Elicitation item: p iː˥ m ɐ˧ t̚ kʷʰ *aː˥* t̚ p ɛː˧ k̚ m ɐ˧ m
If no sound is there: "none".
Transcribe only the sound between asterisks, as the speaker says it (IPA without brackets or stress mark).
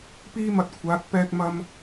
aː˨˥